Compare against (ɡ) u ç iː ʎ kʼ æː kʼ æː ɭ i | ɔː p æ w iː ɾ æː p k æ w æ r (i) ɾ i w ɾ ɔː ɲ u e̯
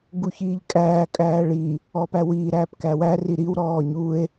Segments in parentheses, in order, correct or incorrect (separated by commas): correct, correct